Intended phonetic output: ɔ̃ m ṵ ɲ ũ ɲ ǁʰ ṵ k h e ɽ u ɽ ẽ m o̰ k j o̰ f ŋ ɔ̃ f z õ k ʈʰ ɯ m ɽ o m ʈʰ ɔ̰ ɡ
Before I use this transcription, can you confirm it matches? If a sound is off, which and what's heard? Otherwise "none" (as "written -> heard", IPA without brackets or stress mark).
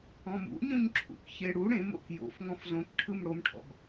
h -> ç